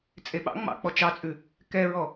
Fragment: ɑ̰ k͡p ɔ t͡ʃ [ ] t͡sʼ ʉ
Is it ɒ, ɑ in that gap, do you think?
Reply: ɑ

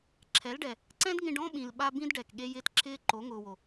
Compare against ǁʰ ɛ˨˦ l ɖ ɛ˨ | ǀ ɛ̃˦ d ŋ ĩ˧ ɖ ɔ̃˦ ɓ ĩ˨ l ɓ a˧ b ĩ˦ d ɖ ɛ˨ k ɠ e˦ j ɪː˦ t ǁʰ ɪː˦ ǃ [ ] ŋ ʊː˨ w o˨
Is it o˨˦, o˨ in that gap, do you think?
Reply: o˨˦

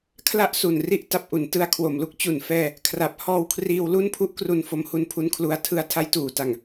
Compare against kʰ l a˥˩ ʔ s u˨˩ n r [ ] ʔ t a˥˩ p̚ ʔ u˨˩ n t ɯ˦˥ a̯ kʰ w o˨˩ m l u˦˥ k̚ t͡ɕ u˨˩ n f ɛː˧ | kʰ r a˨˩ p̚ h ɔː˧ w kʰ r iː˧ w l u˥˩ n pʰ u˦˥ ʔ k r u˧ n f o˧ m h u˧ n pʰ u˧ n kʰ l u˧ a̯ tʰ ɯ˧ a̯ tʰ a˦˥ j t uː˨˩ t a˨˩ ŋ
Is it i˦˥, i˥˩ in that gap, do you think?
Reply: i˥˩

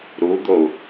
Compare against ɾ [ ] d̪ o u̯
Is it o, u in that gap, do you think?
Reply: u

